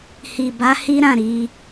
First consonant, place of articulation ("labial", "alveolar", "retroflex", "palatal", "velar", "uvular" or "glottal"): glottal